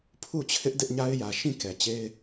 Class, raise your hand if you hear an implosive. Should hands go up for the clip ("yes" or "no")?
no